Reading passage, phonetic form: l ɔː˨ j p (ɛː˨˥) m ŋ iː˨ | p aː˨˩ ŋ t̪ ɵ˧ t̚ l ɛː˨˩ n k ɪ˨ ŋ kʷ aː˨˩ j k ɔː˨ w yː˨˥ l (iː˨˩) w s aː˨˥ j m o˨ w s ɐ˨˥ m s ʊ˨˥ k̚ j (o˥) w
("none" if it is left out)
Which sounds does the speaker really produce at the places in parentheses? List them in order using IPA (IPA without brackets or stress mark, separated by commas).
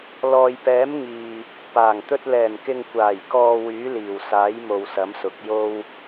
ɛː˨˥, iː˨˩, o˥